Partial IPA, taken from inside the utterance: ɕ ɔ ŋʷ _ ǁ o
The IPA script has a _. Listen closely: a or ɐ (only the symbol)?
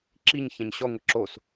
ɐ